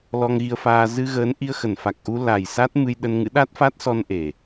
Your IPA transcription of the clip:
l ɔ˧ ŋ ɣ i˧ ə̯ f aː˧ z ɨ˧ ɣ əː˨˦ n ʔ i˧ ə̯ x ə˧˩ n f a˨˩ k̚ ʔ u˧ l a˨˩ j s a˦˥ t̚ m ɨ˧ j ɗ ə˧ n ŋ ɨ̰˧˥ ɗ a˦˥ t̚ f a˦˥ t̚ s ɔ˧ n ʔ e˨˩

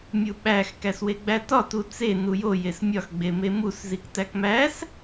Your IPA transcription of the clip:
mʲ u ɓ æ x k æ s w e ɡ͡b æ t ɒ t u t͡s e n u j o j e s mʲ ɒ x ɡ͡b e m e m u s z i k t æ k m æ s

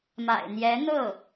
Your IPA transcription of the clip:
m a̰˨˩ ɪ̯ n̪ j ɛ˧˥ n̪ ɤ˥˩

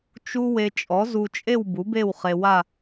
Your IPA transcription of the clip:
t͡ʃ u˥ w e˧ t͡ʃʼ ɔ˨˥ z u˧ t͡ʃʼ e˥˧ w b u˨˥ b e˥˧ w χ e˧ w a˥˧

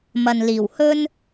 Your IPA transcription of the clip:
m ɐ˨ n l iː˨˩ w h ɵ˥ n

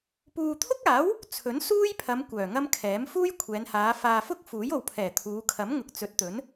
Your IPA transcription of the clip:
p uː˨ t̪ʰ ʊ˥ k̚ aː˨˥ w | t͡sʰ ɵ˨˥ n s uː˥ j pʰ ɐ˨˧ m kʷ œː˨˩ ŋ ɐ˥ m kʰ ɛː˨˥ m f uː˥ j kʷʰ ɛː˨˧ n h aː˨˧ f aː˨ f ʊ˥ k̚ f uː˨˥ j o˨ w pʰ ɛː˨˩ t̪ʰ uː˨˧ kʰ ɐ˨˥ m ŋ ʊ˨ k̚ t͡s ɵ˨˥ t̚ t̪ ɵ˨˥ n

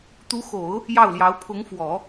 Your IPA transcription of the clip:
t̪ u˧˥ x o˨˩˦ ʊ̯ | j ɑ˥˩ ʊ̯ l j ɑ˧˥ ʊ̯ pʰ ʊ˧˥ ŋ f w ɔ˨˩˦

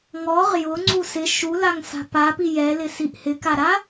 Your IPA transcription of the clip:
ŋ ɔ ʁ j ʊ ŋ͡ǀ u s ɪ ʃ u l a ŋ s a̤ p a p i j ɛ l ɪ s i ʔ h ɪ k a ɾ a

